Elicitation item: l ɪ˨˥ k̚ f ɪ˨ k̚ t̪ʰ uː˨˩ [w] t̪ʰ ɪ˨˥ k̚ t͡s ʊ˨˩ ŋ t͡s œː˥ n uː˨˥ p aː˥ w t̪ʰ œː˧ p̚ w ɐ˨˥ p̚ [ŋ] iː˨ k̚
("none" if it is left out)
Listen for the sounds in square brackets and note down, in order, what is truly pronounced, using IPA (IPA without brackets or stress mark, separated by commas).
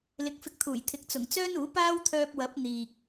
j, n̪